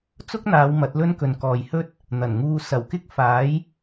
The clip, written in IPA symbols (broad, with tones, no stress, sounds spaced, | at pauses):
t͡s ʊ˥ k̚ n̪ aː˨˧ w m ɐ˨˥ t̚ l ɵ˥ n k ɵ˨˧ n k ɔː˨ j h ɵ˥ t̚ | n̪ ɐ˨˩ n ŋ uː˧ s ɐ˨˩ w k ɪ˥ k̚ f aː˨˥ j